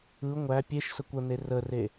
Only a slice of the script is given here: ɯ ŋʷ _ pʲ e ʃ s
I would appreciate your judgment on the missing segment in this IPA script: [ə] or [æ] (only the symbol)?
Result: æ